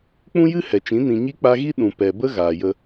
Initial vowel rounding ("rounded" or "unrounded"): rounded